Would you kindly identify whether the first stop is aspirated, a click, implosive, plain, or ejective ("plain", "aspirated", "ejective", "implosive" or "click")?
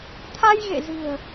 aspirated